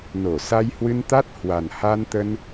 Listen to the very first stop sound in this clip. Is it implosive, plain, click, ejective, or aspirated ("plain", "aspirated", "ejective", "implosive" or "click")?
plain